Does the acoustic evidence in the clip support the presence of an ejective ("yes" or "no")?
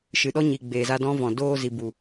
no